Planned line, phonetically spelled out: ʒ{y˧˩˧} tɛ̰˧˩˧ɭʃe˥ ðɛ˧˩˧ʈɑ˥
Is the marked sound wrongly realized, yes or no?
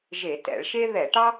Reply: yes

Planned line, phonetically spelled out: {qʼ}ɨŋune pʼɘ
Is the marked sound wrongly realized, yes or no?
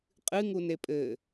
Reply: no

